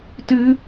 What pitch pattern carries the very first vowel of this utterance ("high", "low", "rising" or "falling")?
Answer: high